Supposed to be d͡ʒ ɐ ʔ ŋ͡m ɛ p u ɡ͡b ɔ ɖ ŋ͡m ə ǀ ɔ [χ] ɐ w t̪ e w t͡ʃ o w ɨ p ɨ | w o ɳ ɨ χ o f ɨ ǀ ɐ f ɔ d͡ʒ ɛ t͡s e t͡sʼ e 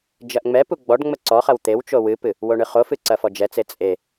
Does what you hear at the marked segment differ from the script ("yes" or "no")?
no